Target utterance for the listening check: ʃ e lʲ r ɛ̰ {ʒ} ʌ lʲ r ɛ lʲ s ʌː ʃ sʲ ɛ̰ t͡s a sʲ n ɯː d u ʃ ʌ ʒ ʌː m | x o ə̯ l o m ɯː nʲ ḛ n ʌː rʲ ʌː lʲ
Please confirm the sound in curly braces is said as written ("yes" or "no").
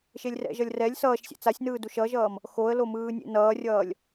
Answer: yes